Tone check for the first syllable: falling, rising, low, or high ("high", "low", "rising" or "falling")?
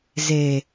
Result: low